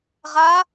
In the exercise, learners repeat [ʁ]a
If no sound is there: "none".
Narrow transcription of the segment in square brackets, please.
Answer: ʁ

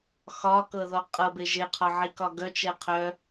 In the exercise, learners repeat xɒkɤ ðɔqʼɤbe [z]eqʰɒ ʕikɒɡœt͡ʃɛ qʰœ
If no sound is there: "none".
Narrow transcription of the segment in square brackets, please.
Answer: ʒ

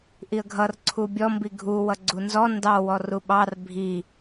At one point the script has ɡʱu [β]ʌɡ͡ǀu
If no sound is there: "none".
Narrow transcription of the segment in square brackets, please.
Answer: w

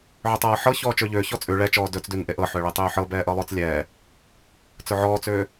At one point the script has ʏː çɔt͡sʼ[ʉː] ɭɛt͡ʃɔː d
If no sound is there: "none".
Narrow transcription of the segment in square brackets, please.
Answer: ʉ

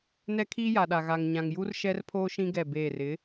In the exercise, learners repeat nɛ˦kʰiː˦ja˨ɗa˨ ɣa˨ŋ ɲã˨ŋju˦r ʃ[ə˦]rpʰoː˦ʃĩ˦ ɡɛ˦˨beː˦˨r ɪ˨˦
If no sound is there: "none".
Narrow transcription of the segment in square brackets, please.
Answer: ɛ˦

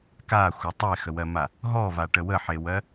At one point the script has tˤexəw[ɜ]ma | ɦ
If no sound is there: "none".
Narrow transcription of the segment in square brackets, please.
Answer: ɜ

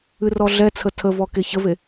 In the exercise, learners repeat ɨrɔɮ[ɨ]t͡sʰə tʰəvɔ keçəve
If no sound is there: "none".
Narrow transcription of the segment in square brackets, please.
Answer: ɛ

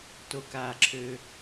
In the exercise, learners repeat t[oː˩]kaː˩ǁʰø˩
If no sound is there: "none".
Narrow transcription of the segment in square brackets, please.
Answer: o˩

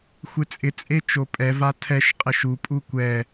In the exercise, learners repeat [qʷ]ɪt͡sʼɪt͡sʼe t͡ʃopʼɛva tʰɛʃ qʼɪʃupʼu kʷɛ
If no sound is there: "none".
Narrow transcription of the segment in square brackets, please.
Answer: xʷ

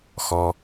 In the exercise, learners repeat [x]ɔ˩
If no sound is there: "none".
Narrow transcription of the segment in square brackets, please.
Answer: x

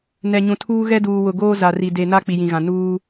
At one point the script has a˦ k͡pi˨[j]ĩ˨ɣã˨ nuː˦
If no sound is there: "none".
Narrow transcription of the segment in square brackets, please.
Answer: j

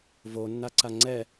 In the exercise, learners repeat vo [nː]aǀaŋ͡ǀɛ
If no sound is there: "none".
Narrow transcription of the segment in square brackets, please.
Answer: nː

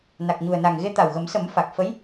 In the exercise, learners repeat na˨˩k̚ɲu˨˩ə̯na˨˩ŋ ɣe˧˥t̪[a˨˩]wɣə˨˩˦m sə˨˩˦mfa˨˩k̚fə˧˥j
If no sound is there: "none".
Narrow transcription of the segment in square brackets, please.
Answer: a˨˩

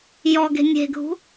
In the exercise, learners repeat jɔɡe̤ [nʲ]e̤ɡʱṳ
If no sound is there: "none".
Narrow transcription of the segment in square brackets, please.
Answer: nʲ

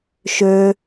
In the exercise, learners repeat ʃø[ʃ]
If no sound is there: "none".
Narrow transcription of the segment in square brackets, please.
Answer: none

